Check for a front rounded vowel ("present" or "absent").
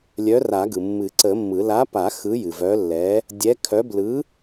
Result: present